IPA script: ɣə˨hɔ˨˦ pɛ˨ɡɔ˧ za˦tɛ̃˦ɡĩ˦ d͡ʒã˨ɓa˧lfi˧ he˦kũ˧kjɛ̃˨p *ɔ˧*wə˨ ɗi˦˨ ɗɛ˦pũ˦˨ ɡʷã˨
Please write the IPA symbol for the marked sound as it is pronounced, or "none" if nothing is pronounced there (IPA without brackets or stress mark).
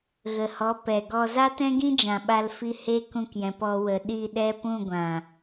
ɔ˧